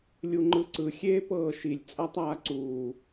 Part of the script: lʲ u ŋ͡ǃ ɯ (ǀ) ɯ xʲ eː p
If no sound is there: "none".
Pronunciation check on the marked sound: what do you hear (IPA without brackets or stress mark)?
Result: ǀ